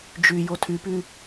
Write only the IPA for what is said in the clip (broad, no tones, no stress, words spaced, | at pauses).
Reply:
d͡ʒy jotʰypy